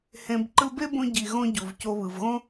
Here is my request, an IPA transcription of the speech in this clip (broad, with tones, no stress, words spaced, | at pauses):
hẽ˨b ǃɯ˦be˥bõ˦ ɟi˨ɣõ˦ɟu˩v co˨βɯ˩vɣõ˦